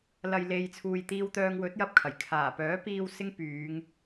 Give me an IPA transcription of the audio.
lɐ˨jle˨jt͡sʰuː˨jt̪iː˧w t̪œː˧ŋwɵ˨˥t̚jɐ˧p̚kʰɐ˨˩j kʰaː˨˩ pœː˨˥piː˧w sɪ˧ŋ pyː˨˧ŋ

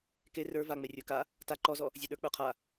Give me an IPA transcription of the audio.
ke rə˞ vaŋ͡me rʲə˞ka | ta ǃɔzɔ | zʲeɗə˞ k͡pə˞qʰa

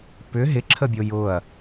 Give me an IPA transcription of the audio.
pʏ ɦɪǁʰəbʲo jʊɐ̯

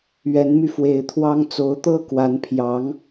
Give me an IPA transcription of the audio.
ɥɛ˧˥nmy˧fwe˧˥ɪ̯t̪ʰwɑ˥ŋ t͡so˧˥ʊ̯t̪ɤ˥˩kwa˧˥npʰjɑ˧˥ŋ

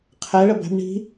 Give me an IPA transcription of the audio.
qʰɛ ɭəbæ̤b ɳi̤

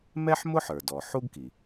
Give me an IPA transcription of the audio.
mɛ˥ħmʊ˥ħə˞˩dɔ˩ ħu˥ɡki˩

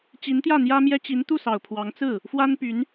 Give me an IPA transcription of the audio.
t͡ɕi˧˥nt̪jä˥˩n̪jä˥mjɛ˥ t͡ɕi˧˥nt̪u˥˩sɑ˨˩ʊ̯ pʰwɑ˧˥ŋ t͡sɹ̩˥˩ | fwa˥n py˧˥n

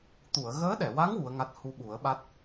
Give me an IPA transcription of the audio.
t̪u˨˩˨ə̯ɣəː˧˥ɗɛ˨˩˨wa˧˥ŋ wu˧˥ə̯ŋa˦˥t̚ hu˧ɓu˨˩˦ə̯ɓa˦˥t̚

